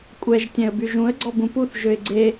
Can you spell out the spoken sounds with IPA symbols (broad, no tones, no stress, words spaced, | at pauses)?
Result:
kʷʼɛʒ tʲɛ̃ə̯byʒũə̯ ɡ͡ǀɔbũpuθ ʒøɪ̯ɡ͡ǀe